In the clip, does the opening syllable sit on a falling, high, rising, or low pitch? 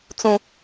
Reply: high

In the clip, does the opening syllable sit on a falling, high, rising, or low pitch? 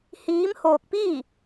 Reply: rising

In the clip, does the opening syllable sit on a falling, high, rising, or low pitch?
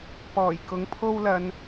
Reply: low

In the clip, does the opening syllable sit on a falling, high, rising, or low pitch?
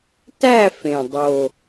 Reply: falling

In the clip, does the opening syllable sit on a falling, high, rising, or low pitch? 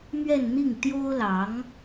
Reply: falling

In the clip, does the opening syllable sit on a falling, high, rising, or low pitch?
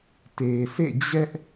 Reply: low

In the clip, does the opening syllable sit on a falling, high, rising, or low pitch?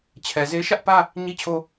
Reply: low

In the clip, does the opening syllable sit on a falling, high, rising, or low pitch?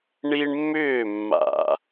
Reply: high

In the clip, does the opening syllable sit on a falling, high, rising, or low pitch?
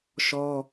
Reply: high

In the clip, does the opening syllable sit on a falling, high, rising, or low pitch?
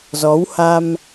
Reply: rising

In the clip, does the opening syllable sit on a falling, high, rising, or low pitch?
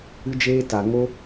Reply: high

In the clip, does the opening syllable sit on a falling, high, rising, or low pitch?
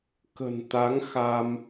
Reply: low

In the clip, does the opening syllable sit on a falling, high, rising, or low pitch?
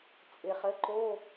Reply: low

